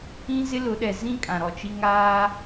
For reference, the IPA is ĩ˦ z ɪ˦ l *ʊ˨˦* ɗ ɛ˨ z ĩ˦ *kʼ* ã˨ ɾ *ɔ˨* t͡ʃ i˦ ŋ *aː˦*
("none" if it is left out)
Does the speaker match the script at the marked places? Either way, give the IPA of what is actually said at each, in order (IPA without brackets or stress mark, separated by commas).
ʊ˨˦, kʼ, ɔ˨, aː˦